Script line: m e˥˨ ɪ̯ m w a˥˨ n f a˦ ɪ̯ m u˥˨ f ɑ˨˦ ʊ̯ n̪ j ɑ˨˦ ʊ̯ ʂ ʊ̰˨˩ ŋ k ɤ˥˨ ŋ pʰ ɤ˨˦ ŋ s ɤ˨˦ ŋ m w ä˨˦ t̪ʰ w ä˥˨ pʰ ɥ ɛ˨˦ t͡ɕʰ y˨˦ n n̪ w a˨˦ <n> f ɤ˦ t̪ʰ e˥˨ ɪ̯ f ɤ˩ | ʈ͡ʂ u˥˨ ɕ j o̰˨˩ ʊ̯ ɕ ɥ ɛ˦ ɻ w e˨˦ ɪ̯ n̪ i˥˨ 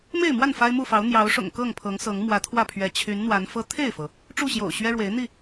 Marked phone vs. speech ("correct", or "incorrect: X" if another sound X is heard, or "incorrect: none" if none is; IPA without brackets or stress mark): correct